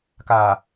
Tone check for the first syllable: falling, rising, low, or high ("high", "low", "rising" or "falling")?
low